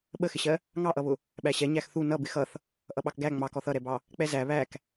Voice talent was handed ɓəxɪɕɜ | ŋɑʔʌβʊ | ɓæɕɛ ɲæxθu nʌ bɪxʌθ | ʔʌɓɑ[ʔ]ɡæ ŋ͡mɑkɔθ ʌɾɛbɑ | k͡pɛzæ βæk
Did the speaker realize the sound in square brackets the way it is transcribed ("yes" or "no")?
no